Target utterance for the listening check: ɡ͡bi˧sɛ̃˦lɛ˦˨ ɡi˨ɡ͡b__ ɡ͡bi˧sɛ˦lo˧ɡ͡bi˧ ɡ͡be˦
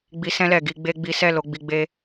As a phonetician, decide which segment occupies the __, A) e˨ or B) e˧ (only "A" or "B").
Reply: B